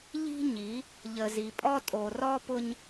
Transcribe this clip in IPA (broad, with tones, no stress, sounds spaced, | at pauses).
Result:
ʎ i̤˦ ɲ i˨˦ | ʎ ə˨ z i˨ pʼ ɔ˦ tʼ o˨ r ɔ˦ p ʊ˦ ɲ